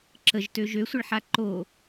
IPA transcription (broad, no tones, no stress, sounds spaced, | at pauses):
ǁ ə ʒ t ø ʒ ø sʷ ə ɭ ħ a ǃ o